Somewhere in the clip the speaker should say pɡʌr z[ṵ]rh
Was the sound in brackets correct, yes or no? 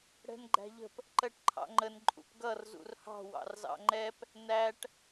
yes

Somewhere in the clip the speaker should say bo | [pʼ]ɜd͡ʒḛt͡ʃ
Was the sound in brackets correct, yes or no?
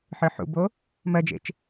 no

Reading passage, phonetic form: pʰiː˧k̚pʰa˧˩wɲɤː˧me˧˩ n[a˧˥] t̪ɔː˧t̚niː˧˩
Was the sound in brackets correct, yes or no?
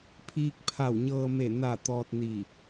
no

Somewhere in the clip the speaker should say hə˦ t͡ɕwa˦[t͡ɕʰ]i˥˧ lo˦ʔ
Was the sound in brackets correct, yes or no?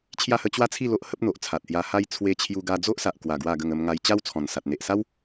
no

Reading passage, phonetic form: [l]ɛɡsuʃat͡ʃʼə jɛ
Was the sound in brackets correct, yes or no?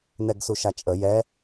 no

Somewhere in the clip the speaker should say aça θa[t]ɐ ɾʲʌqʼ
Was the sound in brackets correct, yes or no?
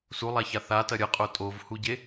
yes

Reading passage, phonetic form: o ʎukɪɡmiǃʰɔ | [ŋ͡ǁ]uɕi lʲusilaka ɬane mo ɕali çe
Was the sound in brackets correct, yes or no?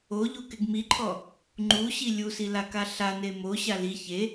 no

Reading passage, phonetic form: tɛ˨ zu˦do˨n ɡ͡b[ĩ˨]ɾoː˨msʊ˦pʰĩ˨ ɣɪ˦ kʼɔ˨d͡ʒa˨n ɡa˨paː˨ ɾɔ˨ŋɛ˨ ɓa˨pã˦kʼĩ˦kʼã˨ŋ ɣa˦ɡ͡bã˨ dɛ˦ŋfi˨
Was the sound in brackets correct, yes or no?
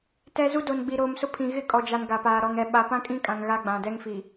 no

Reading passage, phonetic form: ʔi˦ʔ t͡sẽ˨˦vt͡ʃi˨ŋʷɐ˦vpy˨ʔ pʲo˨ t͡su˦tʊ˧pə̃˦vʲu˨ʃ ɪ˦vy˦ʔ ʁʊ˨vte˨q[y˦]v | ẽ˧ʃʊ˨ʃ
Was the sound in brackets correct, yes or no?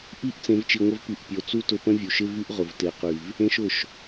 no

